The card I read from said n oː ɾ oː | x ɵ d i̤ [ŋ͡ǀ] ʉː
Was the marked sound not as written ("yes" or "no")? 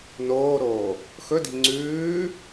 no